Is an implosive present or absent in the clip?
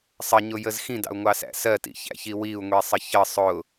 absent